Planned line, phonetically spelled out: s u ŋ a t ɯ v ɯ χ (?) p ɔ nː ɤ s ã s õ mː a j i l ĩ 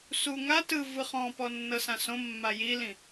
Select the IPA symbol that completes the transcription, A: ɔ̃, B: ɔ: A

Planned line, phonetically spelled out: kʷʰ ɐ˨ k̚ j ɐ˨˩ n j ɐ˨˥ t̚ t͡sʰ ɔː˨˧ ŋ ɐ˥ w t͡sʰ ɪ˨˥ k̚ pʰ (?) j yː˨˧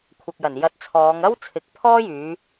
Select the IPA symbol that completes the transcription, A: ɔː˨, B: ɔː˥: B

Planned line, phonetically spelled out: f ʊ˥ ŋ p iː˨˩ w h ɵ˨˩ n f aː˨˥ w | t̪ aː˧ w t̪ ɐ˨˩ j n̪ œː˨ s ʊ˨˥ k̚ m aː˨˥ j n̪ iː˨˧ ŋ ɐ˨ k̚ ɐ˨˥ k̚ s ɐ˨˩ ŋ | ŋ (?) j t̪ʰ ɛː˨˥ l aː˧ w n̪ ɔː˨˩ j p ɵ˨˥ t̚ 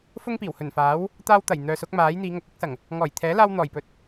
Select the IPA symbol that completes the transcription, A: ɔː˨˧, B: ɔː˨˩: B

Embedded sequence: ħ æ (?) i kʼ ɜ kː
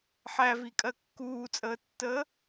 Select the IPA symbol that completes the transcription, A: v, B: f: A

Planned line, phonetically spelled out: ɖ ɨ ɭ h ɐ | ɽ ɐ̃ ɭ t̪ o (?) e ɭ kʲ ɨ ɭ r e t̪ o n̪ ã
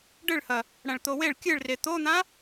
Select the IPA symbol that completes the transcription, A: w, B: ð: A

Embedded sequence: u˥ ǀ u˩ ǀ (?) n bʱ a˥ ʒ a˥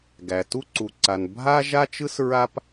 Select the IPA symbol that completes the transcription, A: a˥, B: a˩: B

